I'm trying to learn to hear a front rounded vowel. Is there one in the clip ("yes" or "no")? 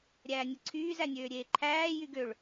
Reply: yes